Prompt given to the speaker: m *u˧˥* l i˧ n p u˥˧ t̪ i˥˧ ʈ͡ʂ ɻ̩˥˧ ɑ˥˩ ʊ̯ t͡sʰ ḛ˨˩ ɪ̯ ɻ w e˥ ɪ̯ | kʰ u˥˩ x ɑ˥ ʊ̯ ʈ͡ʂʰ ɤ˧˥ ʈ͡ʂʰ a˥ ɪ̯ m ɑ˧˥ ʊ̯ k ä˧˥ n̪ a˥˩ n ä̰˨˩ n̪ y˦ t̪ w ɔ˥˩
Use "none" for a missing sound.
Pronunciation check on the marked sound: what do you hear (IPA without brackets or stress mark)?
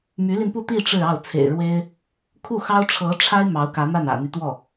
y˧˥